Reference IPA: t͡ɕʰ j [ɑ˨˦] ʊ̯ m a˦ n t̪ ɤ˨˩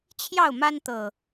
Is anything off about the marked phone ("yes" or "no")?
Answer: yes